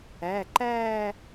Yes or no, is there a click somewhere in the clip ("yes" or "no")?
yes